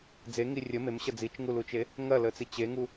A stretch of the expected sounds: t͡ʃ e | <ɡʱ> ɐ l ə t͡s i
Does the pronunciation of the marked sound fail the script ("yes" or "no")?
yes